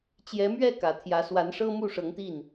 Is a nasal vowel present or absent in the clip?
absent